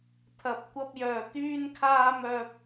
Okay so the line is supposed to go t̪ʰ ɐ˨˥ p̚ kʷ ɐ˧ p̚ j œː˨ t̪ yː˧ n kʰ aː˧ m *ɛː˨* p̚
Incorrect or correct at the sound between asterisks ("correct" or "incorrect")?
incorrect